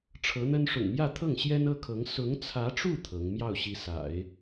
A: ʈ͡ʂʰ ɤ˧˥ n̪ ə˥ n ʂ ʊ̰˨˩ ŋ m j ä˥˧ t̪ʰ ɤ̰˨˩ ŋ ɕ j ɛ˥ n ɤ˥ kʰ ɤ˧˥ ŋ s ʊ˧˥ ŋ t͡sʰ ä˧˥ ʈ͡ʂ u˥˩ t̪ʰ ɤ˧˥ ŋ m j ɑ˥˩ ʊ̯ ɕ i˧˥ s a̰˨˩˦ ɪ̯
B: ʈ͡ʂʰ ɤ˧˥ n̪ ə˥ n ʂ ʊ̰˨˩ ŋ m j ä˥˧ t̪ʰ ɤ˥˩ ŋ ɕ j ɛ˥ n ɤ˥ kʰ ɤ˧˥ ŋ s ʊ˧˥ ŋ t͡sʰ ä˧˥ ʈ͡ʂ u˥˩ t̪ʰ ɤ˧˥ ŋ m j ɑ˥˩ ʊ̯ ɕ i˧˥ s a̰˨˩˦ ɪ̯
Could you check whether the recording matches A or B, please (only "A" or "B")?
B